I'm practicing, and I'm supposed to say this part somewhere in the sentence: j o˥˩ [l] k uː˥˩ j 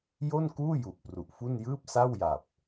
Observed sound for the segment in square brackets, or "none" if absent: n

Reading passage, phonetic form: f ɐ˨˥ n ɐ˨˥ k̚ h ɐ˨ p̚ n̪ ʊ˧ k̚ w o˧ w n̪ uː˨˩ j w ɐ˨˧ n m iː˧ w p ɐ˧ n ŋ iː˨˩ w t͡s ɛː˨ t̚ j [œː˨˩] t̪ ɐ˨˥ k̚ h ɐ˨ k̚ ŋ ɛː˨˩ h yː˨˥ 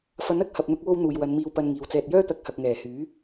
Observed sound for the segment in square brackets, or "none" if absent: œː˥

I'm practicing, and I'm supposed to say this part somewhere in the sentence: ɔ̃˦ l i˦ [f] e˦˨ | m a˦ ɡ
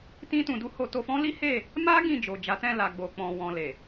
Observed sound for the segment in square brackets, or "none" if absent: h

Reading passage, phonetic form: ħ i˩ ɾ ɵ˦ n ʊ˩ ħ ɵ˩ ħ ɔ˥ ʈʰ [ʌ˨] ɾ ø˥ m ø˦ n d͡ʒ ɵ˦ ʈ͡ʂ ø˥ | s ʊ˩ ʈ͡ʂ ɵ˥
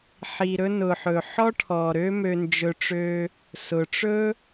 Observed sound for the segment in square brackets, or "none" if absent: ɔ˨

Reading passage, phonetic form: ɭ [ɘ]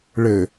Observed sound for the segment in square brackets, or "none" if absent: ɘ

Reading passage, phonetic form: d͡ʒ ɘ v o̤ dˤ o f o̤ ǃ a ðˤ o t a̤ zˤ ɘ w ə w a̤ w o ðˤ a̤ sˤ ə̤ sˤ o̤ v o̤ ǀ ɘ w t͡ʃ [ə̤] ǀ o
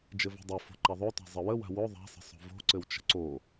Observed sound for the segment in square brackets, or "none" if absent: ə̤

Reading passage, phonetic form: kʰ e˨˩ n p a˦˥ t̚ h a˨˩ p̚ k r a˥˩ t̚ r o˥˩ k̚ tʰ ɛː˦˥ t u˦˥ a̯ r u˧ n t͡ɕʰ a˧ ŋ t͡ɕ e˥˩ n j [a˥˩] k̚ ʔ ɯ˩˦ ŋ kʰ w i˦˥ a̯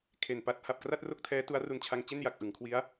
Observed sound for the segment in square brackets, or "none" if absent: a˨˩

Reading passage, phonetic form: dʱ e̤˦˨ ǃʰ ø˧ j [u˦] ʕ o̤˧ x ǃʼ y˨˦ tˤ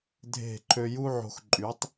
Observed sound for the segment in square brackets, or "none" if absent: u˦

